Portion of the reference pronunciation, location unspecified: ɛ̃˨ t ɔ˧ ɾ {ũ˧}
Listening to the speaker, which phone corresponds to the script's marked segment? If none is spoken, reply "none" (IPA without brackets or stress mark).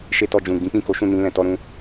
ũ˧